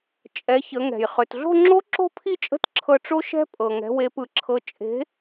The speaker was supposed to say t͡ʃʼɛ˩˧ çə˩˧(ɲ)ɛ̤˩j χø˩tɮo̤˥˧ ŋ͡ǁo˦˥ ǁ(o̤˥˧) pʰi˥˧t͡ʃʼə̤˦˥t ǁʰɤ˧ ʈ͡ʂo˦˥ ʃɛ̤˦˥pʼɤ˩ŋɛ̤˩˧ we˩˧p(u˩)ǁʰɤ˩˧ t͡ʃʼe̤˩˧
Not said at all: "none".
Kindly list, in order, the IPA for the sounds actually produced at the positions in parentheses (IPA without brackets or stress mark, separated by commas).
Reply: ŋ, o̤˥˧, ɯ˩